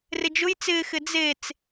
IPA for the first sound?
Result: r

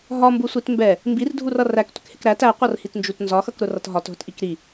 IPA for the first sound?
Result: ɦ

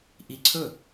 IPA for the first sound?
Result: ʔ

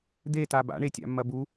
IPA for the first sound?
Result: d̪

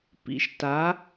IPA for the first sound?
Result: p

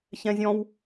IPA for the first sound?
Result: ç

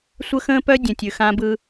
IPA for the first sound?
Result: sʷ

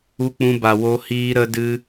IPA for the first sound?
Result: u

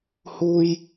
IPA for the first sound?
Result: h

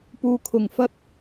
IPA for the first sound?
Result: p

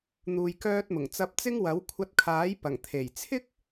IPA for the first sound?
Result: n̪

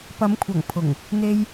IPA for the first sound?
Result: p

